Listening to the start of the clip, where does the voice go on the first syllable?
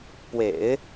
low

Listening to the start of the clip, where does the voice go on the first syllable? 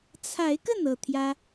rising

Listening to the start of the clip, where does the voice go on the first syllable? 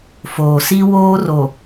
low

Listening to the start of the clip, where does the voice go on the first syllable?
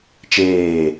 falling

